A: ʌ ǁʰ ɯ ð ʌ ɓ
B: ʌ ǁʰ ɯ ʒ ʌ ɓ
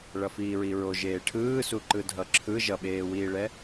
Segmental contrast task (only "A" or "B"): B